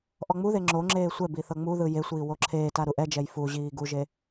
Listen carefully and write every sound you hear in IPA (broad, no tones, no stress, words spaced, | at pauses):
ʔɔŋ͡muðe ŋ͡ǁoŋ͡ǁeː sʷɛbi θɤŋ͡muðɯ jesʷiː woǁʰeːta ɾuʔɛd͡ʒɛj fuʑiː ɡuʒe